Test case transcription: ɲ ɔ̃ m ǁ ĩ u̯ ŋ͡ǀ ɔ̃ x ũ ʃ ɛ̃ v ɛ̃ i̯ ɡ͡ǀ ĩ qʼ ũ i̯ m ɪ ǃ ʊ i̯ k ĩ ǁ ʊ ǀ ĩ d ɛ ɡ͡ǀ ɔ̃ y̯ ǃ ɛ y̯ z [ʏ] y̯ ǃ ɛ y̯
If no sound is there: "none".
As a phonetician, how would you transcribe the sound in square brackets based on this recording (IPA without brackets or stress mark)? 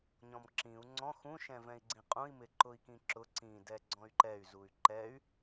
u